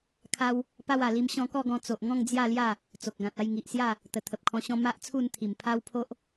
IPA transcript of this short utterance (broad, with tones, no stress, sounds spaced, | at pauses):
kʰ a˧ w | p a˧ w a˨˩ l i˧ m ɕ ɔ̃˧ k ɔ˥˧ ɡ ɔ̃˧ t͡s o˨ ʔ ŋ ɔ̃˥˧ ŋ d͡z j a˥˧ l j a˥˧ | t͡s o˨ k̚ ɡ ã˨ t̚ a˥˧ j ŋ i˨ ʔ s j a˥˧ | t̪ ə˨˩ t̪ʰ ə˨ p̚ kʰ ɔ̃˧ ɕ ɔ̃˦ m a˦ ʔ t͡sʰ u˥˧ n t̪ʰ i˨˩ m pʰ a˦ w pʰ o˦ ʔ